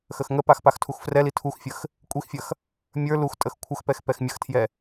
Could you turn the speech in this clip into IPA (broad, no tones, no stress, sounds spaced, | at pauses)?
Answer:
x ə x ŋ ə p a x p a x tʰ u x f r ɛ l i tʰ u x fʲ ə x | kʷʼ i x fʲ ɐ x | mʲ ə˞ l u x tʼ ə x kʷʰ ə x p ɛ x p ɛ x mʲ ə x tʰ j ɛ